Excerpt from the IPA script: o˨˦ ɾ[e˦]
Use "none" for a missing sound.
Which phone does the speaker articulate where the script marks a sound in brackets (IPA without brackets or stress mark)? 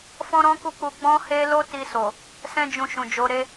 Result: e˦